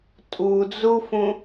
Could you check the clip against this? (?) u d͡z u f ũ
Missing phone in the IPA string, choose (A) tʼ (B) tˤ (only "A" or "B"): A